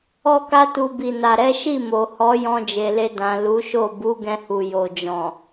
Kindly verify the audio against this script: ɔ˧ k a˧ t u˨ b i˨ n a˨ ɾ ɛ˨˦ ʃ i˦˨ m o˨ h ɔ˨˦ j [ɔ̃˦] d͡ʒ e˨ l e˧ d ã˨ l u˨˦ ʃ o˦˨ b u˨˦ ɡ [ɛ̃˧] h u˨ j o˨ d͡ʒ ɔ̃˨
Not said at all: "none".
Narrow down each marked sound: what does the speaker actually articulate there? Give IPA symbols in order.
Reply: ɔ̃˧, ɛ̃˧

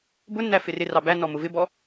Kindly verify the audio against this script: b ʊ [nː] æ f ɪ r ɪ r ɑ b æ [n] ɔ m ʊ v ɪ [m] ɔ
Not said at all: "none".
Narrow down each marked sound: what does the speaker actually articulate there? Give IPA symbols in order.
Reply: nː, n, b

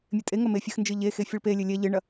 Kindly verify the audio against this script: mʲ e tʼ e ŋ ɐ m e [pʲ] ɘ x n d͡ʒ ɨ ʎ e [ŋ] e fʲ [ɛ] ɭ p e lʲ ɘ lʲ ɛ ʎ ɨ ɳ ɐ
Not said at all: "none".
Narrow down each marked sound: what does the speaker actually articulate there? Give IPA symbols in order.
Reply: fʲ, x, ɨ

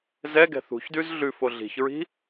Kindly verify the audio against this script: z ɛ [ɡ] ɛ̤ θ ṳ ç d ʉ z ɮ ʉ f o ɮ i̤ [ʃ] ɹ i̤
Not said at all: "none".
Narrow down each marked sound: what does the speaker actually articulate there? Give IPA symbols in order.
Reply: ɡ, ç

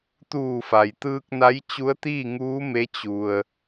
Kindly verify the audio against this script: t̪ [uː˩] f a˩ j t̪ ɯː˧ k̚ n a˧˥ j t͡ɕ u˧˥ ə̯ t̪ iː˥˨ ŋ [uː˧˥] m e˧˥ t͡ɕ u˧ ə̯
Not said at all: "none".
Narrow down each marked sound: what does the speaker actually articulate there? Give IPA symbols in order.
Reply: uː˧˩, uː˧˥

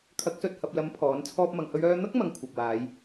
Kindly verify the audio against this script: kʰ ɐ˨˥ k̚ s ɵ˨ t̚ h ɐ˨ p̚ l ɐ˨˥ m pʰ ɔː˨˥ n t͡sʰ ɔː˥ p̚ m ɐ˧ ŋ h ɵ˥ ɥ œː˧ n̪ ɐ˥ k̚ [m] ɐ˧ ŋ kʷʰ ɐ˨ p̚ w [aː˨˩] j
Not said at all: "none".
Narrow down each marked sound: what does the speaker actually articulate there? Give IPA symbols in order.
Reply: m, aː˨˧

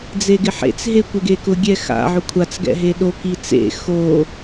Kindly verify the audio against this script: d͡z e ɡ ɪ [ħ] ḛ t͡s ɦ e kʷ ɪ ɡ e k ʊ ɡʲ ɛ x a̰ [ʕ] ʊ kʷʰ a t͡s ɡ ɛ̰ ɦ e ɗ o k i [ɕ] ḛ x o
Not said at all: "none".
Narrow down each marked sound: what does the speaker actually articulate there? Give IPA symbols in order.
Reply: ħ, ʕ, t͡s

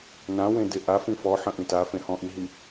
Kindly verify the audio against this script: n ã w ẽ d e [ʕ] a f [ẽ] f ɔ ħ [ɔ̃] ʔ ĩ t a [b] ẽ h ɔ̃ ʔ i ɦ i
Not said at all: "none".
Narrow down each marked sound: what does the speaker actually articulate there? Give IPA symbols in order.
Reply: ʔ, ĩ, ə̃, f

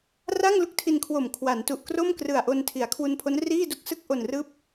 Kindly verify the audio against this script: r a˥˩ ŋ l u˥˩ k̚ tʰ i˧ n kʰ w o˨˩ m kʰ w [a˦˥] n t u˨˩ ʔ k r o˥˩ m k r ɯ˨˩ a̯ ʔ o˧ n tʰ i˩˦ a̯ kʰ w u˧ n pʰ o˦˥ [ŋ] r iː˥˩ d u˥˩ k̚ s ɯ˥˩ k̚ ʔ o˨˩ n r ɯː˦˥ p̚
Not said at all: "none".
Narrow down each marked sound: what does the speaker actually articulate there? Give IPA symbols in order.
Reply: a˩˦, n

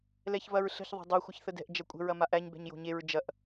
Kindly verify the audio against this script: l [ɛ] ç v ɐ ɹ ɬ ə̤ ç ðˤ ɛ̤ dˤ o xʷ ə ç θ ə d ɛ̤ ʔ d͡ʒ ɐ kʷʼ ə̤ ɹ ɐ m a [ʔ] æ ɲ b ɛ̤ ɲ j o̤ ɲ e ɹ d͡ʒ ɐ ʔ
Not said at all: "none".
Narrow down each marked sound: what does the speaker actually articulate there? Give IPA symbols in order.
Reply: ɛ, ʔ

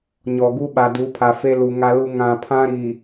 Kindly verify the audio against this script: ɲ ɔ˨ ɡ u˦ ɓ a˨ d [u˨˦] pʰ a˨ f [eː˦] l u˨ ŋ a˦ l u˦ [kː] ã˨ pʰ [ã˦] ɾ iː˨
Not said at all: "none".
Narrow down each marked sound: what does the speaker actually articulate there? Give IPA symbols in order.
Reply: u˨˦, e˦, ŋ, ã˦

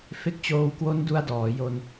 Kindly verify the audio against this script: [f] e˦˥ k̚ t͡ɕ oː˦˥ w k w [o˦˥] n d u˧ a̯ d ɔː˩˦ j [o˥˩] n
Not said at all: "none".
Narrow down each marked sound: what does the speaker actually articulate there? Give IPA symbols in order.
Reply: f, o˦˥, o˧

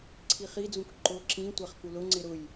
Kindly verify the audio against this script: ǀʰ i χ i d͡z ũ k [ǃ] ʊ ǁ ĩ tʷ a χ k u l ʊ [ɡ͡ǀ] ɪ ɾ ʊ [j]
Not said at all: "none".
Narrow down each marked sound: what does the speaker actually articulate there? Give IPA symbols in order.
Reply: ǃ, ŋ͡ǀ, j

